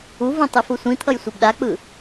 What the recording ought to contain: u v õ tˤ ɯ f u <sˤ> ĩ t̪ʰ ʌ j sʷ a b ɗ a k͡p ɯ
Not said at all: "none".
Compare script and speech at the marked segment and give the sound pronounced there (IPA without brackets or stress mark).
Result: sʷ